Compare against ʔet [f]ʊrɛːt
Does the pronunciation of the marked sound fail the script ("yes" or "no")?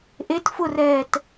no